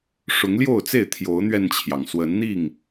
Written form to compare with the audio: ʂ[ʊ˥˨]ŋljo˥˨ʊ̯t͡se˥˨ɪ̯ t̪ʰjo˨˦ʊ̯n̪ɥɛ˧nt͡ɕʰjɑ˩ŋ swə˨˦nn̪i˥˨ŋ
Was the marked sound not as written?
yes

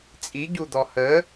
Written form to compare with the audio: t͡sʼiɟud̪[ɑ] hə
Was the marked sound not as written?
yes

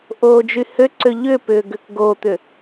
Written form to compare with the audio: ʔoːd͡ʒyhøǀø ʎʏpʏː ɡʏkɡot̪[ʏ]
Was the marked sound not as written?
no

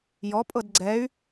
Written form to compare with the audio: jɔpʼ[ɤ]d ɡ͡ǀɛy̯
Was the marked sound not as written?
no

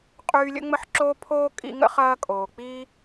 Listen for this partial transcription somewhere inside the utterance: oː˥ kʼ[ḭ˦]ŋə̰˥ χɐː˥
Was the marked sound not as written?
no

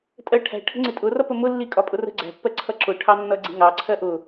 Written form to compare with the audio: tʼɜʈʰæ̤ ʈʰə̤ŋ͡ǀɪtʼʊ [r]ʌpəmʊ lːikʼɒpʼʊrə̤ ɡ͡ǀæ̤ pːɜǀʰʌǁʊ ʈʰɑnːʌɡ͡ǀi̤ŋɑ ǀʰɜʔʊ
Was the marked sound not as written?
no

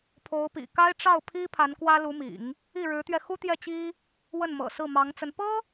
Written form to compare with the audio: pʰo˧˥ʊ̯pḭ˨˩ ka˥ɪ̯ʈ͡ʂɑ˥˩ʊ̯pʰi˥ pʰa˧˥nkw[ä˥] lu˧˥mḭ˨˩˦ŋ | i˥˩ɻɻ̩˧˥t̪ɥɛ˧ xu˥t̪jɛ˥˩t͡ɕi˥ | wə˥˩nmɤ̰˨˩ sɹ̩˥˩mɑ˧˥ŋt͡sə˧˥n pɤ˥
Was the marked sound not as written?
no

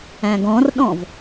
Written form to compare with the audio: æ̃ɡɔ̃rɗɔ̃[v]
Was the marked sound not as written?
no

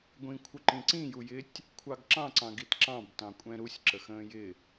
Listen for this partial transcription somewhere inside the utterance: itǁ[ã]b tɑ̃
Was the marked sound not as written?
yes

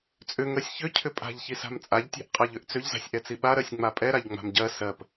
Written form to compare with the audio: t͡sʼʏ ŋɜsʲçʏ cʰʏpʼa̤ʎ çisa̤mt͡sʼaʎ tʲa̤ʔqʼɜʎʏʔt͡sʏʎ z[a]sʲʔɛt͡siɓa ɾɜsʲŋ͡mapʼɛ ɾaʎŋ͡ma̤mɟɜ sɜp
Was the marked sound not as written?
yes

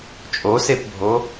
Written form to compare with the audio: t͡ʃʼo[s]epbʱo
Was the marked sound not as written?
no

